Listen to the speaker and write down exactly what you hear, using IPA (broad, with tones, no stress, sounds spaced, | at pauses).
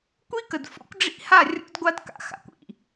kʷ i˦ k ə˨ d f o̰˦ kʷ ɖ͡ʐ ḭ˦ h a˦˨ rʲ o̰˦ d ɡʷ a˦ d k a̰˨ x a̰˨ kʷ ḭ˨